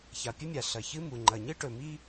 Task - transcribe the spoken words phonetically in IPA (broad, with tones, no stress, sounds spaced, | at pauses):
ç a˩ pʲ ɵ˥ mʲ a˩ ɬ ɐ˩ ç ɨ˥ m u˩ ŋ͡ǃ ɐ˩ ɲ ɨ˥ ʈ ɵ˩ m i˥